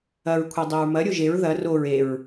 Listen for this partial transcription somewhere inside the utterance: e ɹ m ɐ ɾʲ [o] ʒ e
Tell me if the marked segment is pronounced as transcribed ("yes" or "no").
yes